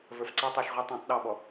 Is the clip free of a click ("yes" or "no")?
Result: no